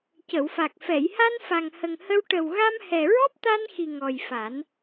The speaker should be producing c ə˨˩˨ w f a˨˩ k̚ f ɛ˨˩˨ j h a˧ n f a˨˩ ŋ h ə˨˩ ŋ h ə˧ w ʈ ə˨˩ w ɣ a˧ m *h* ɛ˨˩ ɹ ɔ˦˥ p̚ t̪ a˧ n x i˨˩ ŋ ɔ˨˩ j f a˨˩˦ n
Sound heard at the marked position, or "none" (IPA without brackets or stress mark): h